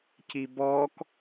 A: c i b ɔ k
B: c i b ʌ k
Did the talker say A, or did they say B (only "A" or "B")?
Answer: A